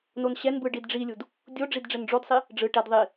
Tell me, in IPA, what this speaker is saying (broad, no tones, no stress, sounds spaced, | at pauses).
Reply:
n o n ɕ ɛ n b ɯ ɖ i d ɖ͡ʐ i lʲ u d | dʲ o ɖ͡ʐ i d ɖ͡ʐ ɛ n ɖ͡ʐ o d sˤ i | ɖ͡ʐ ɯ ʈ ɛ d ðˤ i